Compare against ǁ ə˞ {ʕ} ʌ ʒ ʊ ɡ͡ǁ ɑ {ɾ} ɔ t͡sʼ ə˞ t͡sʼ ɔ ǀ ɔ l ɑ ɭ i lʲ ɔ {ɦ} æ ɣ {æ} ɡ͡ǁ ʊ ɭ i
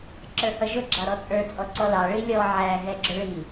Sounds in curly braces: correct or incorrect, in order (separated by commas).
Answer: incorrect, correct, incorrect, incorrect